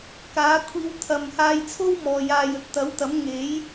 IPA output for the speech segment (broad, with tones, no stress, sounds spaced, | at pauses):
k aː˨˥ kʷʰ iː˧ w t̪ʰ ɐ˨ m h aː˧ j t͡sʰ o˥ w m ɔː˨ j aː˨ j ɵ˨ t̚ t̪ ɐ˨˥ w t̪ ɐ˨˥ m ŋ e˨˥ j